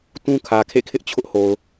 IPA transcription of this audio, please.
t ũ˦ kʰ ä˨ kʰ ḛ˦˨ kʰ ɪ˦ ʔ t͡ɕʰ ʊ˦ ʔ h o˨ ʊ̯

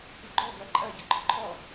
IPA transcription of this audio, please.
pʲ o ɡ͡ǃ ɔ ɡ ɜ ǃʼ ɜ ɟ ə ɡ͡ǃ ɔ ǃʰ ɔ

